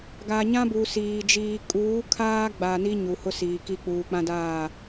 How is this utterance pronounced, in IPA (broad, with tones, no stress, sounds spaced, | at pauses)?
ɡ a˨ ɲ ã˦ b u˨ s iː˨ d͡ʒ iː˨ kʼ uː˨˦ kʰ aː˦ ɡ͡b a˨ n i˦ ɲ u˨ h ʊ˦ s iː˨ k i˦ k͡p uː˨ k͡p ã˦ d aː˦˨